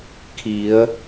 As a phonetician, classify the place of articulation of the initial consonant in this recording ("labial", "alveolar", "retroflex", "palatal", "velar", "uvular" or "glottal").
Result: velar